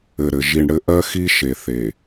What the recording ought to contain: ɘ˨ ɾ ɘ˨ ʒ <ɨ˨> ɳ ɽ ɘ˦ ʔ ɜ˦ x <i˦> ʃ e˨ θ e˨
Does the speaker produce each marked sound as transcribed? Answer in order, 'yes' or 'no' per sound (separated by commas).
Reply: no, yes